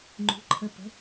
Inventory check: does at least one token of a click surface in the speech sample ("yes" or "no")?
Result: yes